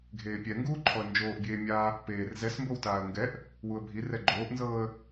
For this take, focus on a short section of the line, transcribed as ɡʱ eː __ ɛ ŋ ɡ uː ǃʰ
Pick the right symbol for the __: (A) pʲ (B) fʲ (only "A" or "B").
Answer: A